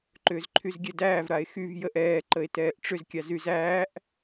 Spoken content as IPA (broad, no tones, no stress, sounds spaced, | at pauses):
ǃ ʏː z ǃʰ y z ɡʲ ɛ d æː v ɾ a e̯ x y v j ə ʔ ɛː ǃ ə e̯ t ɛː ʔ ʈ͡ʂ ʏ z kʲ a z y z æː ʔ